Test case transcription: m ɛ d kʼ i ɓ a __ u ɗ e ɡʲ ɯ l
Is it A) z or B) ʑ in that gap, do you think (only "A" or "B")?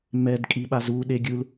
A